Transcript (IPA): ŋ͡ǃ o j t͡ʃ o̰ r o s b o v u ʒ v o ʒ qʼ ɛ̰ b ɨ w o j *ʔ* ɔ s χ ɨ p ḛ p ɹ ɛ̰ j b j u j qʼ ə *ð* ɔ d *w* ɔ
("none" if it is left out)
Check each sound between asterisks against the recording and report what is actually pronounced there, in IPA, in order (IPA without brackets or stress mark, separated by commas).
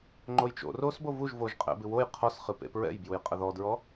qʰ, ð, ɹ